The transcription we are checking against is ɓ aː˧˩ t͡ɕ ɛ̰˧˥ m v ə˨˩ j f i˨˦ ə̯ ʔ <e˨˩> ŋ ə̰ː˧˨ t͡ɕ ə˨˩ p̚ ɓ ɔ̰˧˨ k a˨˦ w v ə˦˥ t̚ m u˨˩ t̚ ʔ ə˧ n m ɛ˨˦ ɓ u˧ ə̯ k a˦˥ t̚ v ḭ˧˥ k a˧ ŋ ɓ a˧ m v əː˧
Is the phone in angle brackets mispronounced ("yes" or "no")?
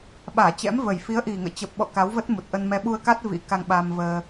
yes